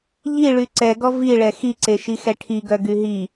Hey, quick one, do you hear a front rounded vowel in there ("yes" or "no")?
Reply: yes